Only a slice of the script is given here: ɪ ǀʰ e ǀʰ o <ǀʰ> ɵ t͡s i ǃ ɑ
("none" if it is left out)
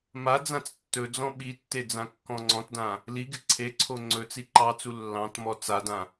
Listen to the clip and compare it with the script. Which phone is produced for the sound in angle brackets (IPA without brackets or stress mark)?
ŋ͡ǀ